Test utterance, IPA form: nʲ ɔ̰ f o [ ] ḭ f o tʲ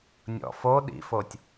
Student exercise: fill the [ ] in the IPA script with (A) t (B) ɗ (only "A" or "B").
B